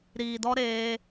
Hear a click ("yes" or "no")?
no